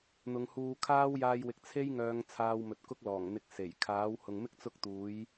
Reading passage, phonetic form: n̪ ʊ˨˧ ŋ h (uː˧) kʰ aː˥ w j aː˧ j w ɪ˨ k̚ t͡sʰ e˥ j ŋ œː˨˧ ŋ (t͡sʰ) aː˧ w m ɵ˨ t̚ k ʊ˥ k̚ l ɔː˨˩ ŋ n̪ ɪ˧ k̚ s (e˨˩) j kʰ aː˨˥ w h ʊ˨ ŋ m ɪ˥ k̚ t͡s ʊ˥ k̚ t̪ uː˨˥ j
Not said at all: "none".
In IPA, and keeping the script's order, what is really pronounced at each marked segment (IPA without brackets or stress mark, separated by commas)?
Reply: uː˧, t͡sʰ, e˨˩